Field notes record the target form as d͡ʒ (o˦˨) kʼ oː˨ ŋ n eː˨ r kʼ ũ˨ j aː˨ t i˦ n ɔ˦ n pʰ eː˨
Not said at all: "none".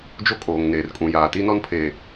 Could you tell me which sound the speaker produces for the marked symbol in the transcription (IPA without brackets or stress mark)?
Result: o˦